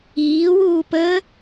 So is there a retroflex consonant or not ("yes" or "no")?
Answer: no